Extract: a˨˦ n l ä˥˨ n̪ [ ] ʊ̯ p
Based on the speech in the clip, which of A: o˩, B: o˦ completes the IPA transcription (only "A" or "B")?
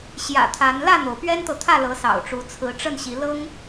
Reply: A